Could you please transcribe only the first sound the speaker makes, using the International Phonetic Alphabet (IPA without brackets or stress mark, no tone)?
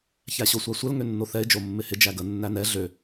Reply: ç